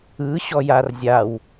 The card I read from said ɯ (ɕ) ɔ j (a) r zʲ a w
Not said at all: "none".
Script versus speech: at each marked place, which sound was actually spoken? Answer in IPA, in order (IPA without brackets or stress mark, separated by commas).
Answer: ɕ, a